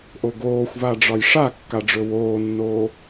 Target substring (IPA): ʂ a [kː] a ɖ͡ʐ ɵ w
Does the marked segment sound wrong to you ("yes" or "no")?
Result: no